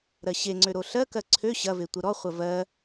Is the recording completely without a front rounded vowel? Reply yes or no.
no